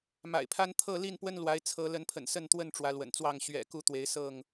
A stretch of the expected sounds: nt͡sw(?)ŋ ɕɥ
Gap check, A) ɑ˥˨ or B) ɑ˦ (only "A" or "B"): A